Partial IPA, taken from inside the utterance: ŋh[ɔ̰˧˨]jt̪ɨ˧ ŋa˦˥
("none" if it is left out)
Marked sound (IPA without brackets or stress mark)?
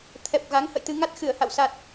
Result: ə̰˧˨